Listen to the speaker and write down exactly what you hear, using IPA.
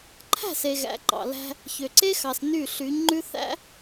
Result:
ǃʰ æ̤˦˨ s e˨ ɣ æ̰˨ ǃ ɑ̰˨ l æ̤˦ | ç ø˨ ǀ e˦ x ɑ˨ s n y˦˨ ɬ y˨˦ ɲ ŋ͡ǃ ʉ˦ θ æ̰˦

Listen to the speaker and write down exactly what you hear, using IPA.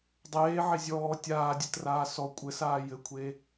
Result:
dˤ eː ʕ e zʲ ɔː tʲ aː dʲ ɘ t r aː s ɔ kʷʼ ɘ s aː j ɘ kʷʰ e

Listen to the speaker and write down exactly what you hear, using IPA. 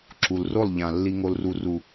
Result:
ǁ u˨ l r o˦˨ lˠ ʎ ã˨ lː i˨ ŋ o˨ l r u˨ r u˨

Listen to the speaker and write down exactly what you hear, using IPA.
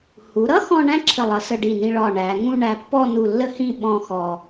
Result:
h u˩˧ ɾ ʌ˥ x ɔ̃˧ ɳ æ̃˥ ǁʰ ə˧˩ lˠ ʌ˩˧ s ə˧ ɖ i˧˩ n ĩ˧ ɭ ɒ˧˩ ɳ æ˩˧ ŋ ũ˥˧ ɳ æ˧ pː ɔ˥˧ n u˧˩ lː ə˥ h ĩ˥˧ ɓ ɔ̃˥˧ x ɔ˧

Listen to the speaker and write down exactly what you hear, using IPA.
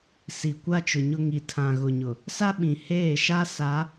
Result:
s i˨ kʷ a˦ t͡ʃ ʊ˨ ɲ ʊ˦ ŋ i˨ tʰ ã˨ ɣ ʊ˨ ɲ ʊ˨ | s a˦ ɓ ĩ˨ h eː˦˨ ʃ a˦ s a˨˦

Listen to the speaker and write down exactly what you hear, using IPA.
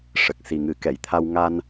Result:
ʂ ə˨˩ k̚ s i˨˩ ŋ ɨ˨˩˦ k ɛ˨˩˨ j t̪ʰ a˧ w ŋ a˧ n

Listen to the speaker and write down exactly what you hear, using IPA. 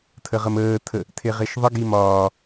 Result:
tʰ ə ʁ ə m əː tʰ ə | tʰ e ʁ e ʃ ðˤ ə ɡ i m ɒː

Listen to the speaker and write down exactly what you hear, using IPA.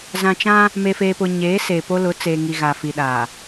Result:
z ã˨ t͡ʃ ã˦ | m e˨ f eː˨ p ʊ˨ ɲ eː˨˦ s eː˨ p o˦ l ʊ˨˦ t͡s eː˨ ŋ i˨ ɣ aː˨ f i˨ ɗ aː˨

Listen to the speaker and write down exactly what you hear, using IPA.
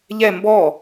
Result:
ʎ ɛ m b ɔ

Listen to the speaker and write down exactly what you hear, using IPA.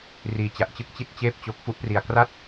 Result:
r iː˧ t͡ɕ a˨˩ ʔ t͡ɕ ɯ˥˩ k̚ t͡ɕ i˥˩ t̚ t͡ɕ eː˥˩ p̚ t͡ɕ o˦˥ k̚ f u˦˥ ʔ p r i˧ a̯ k r a˥˩ t̚

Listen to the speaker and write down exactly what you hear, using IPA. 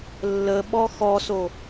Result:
lː ə ɓ ɔ x ɔ s o

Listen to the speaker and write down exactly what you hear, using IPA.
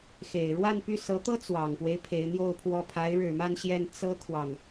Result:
x e˨˩ ɪ̯ ɻ w a˥˧ n p y˥˩ s ɤ˧˥ t̪ ɤ˥ t͡s w ɑ˨˩ ŋ p w e˦ ɪ̯ pʰ e˧˥ ɪ̯ n̪ j o˥˧ ʊ̯ pʰ w ɔ˥˩ pʰ a˧˥ ɪ̯ ɻ ɻ̩˨˩ m a˥˧ n ɕ j ɛ˥˩ n t͡s ɤ˥ kʰ w ɑ˨ ŋ

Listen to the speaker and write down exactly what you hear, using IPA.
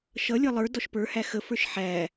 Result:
ʃ ʌ lʲ ʌ lˠ ə˞ d ɔ ʃ p ə˞ h æ x ə f ə˞ ʃ ħ æ

